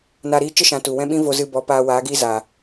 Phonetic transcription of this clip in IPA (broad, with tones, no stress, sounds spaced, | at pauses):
n a˧ ɾ iː˦ t͡ʃ ə˦ ʃ ã˨ t u˨ w ɛ̃˦ ɓ ĩ˦ v o˧ z ɨ˧ b ɔ˨˦ p aː˧ w aː˨˦ ɡ iː˦ z a˨